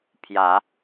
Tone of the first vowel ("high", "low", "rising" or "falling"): rising